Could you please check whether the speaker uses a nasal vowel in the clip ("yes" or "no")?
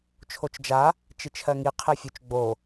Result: no